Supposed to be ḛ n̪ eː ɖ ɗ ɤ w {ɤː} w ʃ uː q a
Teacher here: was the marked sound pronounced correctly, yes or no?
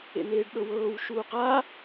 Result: yes